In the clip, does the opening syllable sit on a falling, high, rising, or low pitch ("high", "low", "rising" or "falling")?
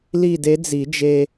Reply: falling